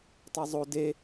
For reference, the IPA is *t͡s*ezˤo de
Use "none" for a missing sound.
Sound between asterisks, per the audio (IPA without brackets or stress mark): tˤ